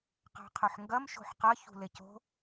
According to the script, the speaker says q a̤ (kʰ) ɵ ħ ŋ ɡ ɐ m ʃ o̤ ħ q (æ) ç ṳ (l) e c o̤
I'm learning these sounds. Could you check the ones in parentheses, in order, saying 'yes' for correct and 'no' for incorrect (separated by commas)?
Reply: no, no, yes